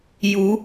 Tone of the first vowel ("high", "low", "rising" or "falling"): rising